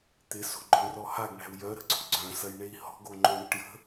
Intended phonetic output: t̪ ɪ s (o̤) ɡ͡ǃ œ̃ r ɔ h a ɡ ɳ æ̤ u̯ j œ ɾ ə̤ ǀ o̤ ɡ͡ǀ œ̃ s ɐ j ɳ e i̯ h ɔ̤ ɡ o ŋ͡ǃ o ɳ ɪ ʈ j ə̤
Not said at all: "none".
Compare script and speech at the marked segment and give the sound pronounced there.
o̤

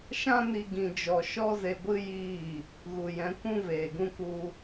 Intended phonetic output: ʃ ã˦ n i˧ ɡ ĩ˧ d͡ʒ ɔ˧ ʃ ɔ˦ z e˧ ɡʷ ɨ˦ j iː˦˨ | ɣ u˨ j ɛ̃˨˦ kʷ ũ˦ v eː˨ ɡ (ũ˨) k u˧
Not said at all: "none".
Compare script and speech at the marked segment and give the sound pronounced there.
ũ˦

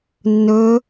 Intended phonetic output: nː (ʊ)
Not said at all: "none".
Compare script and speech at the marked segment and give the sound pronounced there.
ɵ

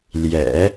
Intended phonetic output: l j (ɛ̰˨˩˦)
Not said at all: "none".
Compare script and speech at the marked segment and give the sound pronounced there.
ɛ̰˨˩˦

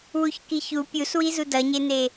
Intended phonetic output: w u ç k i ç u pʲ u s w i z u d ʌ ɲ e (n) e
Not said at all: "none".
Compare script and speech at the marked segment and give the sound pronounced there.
n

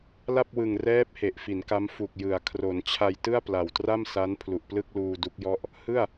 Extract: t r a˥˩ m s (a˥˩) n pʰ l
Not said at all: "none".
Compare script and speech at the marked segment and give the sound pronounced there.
a˦˥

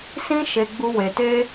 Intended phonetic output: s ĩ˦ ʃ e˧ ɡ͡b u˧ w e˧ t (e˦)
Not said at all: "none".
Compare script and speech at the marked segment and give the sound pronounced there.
e˦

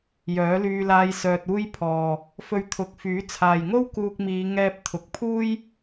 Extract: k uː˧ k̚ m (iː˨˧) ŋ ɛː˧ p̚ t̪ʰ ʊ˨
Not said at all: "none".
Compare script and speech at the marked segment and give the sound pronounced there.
iː˨˧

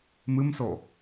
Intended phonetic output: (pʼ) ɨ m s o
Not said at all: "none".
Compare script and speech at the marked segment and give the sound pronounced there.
m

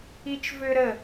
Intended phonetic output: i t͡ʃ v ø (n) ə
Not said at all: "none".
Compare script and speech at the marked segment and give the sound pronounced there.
ɾ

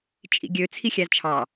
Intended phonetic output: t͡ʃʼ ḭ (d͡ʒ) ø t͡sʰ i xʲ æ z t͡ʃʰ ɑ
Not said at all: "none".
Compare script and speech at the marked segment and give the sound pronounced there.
ɡʲ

